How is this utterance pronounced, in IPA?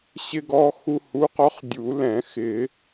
ɕɪ˧ɡɔ˧ xu˧hu˨˥qɔ˨˥χ dʲu˨˩˦lɛ̃˨˩˦ xɪ˨˩˦

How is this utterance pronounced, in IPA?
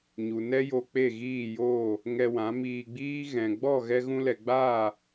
ɲu˨nɛ˦jo˧ k͡pe˦˨ɣiː˦˨joː˦˨ | ŋɛ˧wã˨˦miː˧ɡ͡biː˦ ɣɛ̃˨ɡ͡bɔ˦˨ ɣɛ˦ɣũ˦lɛ˧ ɡ͡baː˦˨

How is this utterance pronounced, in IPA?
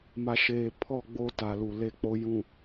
ma˨ʃeː˨ pʰɔ˦˨ ɡ͡bo˦ ta˨lu˨ le˦k͡po˦ jũ˨

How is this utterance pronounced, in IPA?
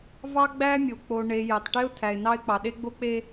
vɑ˦ ɡ͡bæ˦mʲo˨k͡po˨ ɳe˨ je˨tˤʈe˦ʊ̯ tʰæ˨ɪ̯nɑ˦ɪ̯k͡pɑ˨ ɗe˦ɡ͡bo˦k͡pe˦

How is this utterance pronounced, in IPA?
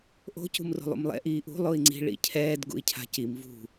ʔo̤ cṳmro̤lˠṵmlˠɛ̰ ʔiːʔṳ lˠoi̯ŋ͡ǀi̤ ɭḭcʰɛːd ɡṵi̯cʰa̤cim vṳ

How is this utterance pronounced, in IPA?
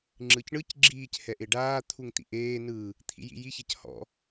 ŋ͡ǁɯcɳɯc ɡ͡ǁiːc hɛʔeɖaː t̪ʰuŋt̪ḭʔeː nɯː | t̪ʰḭjḭji çɛchɔ̰

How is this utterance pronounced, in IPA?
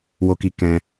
wo˧ki˧ kɛ̃˦

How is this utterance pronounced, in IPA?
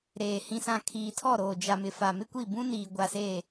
ɾeː˨ hĩ˨sã˨ kʰiː˨tʰɔ˦˨ɾoː˨ d͡ʒa˨mɪ˨ fa˨mɪ˦kʷi˦˨ bũ˦niː˨ ɡʷa˦seː˦˨

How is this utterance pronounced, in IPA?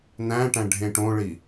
næ̃ʈæ̃ ɖʱẽʈõɭi

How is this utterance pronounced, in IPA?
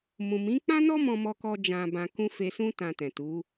mũ˨mĩ˨˦k͡pã˦nɔ˦ mɔ̃˦mɔ˦kɔ˦ d͡ʒã˧bã˧ kũ˦ fe˧sũ˦ tã˧tɛ̃˨tu˨˦

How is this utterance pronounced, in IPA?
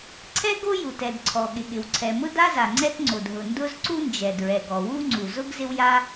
ǀʰɛ˥ɡo˥ju˩tɛ˩d ǀʰɔ˩ɠɪ˩ɠɪ˩w ǀʰɛ˩mʊ˥da˥za˩ ŋ͡ǀɛ˥tŋ͡ǀo˩dɦʊ˩ndʊ˥z ǀu˥nd͡ʒɛ˩ dɹɛ˩ɡɔ˩ wu˥ŋ͡ǀu˩ zʊ˥ɡ zɪ˥wja˥

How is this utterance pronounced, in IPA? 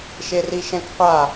ʃeriʃɛ̃kqʷa

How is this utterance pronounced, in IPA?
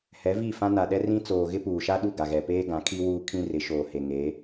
hɛ˨˦vi˦˨fã˦ na˨ɗɛ˦ rĩ˦t͡soː˨ ɣɪ˦puː˨ʃa˦ ɗu˦˨ɡa˨ɣɛ˨peː˦ ɡã˨˦kʰi˦wuː˦ kʰĩ˦rɪ˨˦ ʃoː˨ he˨ŋeː˨˦

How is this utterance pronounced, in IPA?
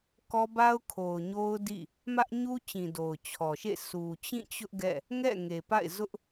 kɔ˦ba˦ʊ̯ kʰo˨ʊ̯ɲo˦ʊ̯ dḭ˦˨ | mä˦ʔɲu˦t͡ɕĩ˨ do˨ʊ̯t͡ɕʰɔ˨ʃḛ˦˨ sʰu˨t͡ɕĩ˦˨t͡ɕʊ˦ʔ ɡɛ̰˦˨ | ŋɛ̰˦˨ŋe˨pa̰˦˨ɪ̯ zʊ˦ʔ

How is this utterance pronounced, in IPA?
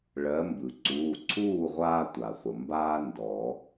ɭɜ˨˦mbɯ˩ ǀuː˩˧˩ǀʰuː˥˨ʁʷaː˦ tʷa˩χʷə˩ mbaː˦ ndɔ˨˩˦

